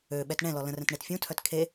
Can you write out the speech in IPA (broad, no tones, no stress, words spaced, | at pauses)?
øɓɛt ɳɛ̃lɔ lə̃rɛ̃tɳet fʲũtʰœt kʰe